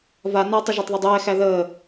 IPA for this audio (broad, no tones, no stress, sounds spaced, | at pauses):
v a n a tˤ ə ʒ æ tˤ ð ɘ dˤ ɛː x æ ð əː